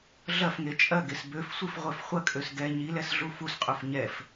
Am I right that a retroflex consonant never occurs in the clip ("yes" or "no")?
yes